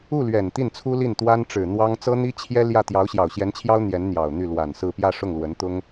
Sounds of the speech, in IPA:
u˥˩ lɥɛ˨˩nt̪i˥˩nt͡sʰu˥li˥˩n t̪wa˥nʈ͡ʂɻ̩˨˩ n̪wɑ˥ŋ t͡sɤ˥n̪i˥t͡ɕʰjɛ˥ljä˥˩ t̪jɑ˧˥ʊ̯ɕjɑ˨˩ʊ̯ɕjɛ˧˥nt͡ɕʰjɑ˥ʊ̯ n̪jɛ˧˥n n̪jɑ˨˩ʊ̯n̪y˥˩lwa˨˩nsɹ̩˥˧ pjä˥˧ʂʊ˥˩ŋlwə˧˥nt̪ʊ˥ŋ

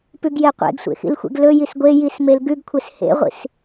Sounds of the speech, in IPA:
pʉɡjeqʷḛɡsʷḛ xḭlxʷḛɡlɵjis ɡʷe jismelɡʉɡkʷʰes hḛʁʷḭs

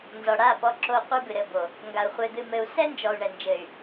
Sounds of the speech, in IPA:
nzɔ˨ɽa˦˨pɔ˧ ǁo˧ qʷɨ˧bɨ˨ ɾɘ˧ bo˨ | ŋɡa˨u̯χʷe˧d̪ɨ˧mɘ˧u̯ sɛ˦nd͡ʒɔ˨u̯ɳɛ˨nd͡ʒɘ˨y̯

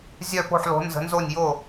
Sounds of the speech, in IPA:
zʲœ˥˩po̤˥˩ħlo̤˨˥ nzə̤˨˥nzo˥˩nʲjo˥˩

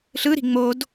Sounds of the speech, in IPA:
ɬɯɾi̤ ŋ͡mod

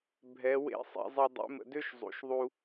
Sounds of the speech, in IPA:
bʱɛ˧˥wḛ˥ sˤḛ˧˥zˤe˥ dˤḛ˧˥mə̰˧dø˥ʃ zˤṵ˧˥ʃðˤu˥

